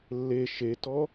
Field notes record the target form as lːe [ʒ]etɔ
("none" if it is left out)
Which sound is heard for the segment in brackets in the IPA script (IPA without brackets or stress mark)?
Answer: ʃ